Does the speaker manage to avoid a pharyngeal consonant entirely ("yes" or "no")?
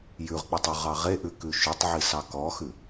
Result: no